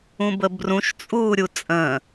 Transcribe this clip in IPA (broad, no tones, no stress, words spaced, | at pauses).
ũbəbrũʃ t͡sʼuːɾʲut͡sʼə̃ː